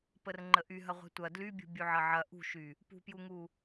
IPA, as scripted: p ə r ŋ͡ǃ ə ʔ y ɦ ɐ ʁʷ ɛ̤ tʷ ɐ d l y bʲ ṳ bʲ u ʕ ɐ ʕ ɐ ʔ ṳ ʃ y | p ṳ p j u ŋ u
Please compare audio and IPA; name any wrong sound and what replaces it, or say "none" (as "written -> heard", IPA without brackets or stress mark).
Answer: none